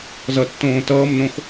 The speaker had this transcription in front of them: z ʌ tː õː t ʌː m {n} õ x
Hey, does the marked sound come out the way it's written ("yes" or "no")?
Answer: yes